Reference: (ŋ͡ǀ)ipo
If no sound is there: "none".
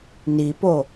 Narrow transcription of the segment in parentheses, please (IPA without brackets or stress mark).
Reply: n